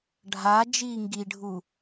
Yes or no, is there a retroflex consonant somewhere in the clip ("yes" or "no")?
yes